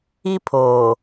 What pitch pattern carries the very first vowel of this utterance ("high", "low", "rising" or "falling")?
high